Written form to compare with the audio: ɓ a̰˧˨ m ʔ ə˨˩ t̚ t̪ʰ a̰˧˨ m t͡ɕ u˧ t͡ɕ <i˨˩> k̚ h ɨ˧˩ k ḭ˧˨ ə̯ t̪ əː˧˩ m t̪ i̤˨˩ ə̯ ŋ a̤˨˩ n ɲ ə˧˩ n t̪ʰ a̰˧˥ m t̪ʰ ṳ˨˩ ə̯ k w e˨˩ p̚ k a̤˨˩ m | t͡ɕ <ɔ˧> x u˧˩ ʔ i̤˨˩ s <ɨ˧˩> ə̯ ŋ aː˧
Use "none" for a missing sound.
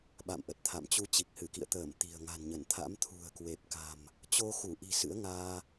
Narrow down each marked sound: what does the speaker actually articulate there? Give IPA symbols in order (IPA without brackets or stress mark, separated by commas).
i˨˩, o˧, ɨ̰˧˥